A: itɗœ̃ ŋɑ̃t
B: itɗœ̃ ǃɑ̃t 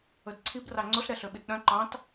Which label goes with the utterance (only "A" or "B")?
B